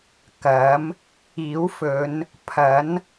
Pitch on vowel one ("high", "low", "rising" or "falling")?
rising